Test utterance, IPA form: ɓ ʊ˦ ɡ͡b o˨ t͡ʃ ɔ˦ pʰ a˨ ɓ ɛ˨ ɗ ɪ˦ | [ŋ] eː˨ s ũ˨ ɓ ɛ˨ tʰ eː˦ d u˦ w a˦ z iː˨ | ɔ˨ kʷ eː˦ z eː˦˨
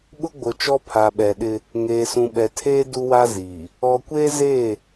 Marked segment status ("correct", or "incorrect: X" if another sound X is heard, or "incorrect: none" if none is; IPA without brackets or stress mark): correct